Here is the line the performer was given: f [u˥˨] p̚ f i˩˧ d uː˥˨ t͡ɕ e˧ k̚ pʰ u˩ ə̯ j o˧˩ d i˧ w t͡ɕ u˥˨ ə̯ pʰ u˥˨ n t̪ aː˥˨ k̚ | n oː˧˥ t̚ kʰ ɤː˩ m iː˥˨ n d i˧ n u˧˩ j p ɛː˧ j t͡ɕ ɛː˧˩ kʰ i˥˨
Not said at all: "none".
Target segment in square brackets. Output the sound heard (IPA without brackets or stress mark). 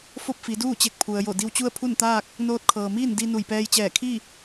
o˥˨